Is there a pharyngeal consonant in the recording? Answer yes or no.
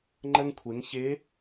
no